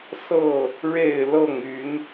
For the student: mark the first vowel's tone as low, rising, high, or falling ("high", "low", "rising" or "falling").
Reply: falling